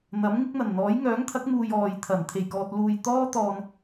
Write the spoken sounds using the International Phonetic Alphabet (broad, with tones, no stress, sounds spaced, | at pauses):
n̪ ɐ˨˥ m ŋ ɪ˥ k̚ n̪ ɐ˨˩ n n̪ ɔː˨˥ j ŋ œː˨˥ ŋ t̪ʰ ɐ˨˥ k̚ m uː˨ j ɔː˨ j t̪ʰ ɐ˨˩ n t̪ʰ e˨˩ j k ɔː˨ t̚ l uː˨ j t̪ ɔː˥ t̪ ɔː˧ n